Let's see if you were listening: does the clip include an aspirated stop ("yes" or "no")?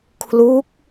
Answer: yes